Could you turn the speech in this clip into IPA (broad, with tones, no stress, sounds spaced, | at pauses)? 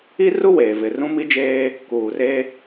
i˦ r u˦ w eː˨ v ɪ˨ r ũ˦ m i˦ d͡ʒ eː˦ | k uː˨ r e˦